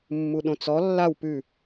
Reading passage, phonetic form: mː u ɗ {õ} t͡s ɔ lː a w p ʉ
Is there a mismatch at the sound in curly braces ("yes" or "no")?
no